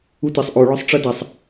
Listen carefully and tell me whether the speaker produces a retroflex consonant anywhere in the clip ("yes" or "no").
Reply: yes